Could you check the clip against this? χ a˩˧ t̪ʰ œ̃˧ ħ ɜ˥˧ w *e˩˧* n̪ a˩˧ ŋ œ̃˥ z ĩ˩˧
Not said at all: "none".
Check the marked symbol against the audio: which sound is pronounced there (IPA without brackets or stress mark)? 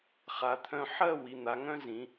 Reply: i˩˧